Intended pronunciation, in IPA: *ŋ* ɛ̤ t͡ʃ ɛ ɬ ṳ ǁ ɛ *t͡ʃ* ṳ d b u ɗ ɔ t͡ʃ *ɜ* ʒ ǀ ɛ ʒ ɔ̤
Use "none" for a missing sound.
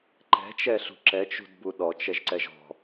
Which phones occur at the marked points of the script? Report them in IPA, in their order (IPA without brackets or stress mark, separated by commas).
ǃ, t͡ʃ, ɛ